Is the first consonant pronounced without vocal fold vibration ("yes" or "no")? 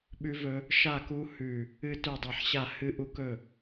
no